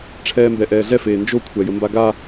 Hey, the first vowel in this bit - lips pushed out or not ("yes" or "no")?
no